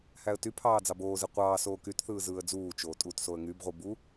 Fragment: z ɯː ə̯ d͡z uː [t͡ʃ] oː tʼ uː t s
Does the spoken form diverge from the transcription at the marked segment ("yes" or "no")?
no